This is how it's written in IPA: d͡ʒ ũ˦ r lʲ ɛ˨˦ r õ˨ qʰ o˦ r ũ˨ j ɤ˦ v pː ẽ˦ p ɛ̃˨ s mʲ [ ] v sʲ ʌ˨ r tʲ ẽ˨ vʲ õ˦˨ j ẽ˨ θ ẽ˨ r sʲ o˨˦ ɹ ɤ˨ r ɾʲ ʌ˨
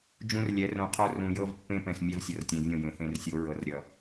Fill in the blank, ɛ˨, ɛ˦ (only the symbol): ɛ˦